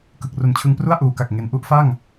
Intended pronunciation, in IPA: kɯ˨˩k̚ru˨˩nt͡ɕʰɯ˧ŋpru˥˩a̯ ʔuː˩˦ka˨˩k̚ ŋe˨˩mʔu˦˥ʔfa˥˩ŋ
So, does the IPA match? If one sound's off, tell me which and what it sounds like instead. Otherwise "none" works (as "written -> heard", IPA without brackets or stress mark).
m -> n